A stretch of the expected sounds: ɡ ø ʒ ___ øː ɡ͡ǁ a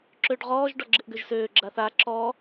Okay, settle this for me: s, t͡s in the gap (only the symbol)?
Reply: s